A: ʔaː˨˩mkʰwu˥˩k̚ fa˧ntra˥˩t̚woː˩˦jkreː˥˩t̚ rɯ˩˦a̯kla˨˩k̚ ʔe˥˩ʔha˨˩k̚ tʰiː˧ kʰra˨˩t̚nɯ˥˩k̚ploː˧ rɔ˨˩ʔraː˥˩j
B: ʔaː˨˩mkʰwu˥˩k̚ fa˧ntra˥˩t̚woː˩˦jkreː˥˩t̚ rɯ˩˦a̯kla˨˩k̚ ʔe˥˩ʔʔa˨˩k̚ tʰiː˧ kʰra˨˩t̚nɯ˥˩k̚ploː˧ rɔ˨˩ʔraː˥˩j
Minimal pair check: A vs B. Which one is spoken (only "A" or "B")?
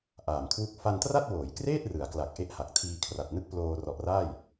A